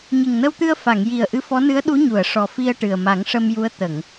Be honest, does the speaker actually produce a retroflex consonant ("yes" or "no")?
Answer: yes